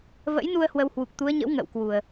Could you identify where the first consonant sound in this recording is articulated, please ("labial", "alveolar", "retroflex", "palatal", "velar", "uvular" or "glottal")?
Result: labial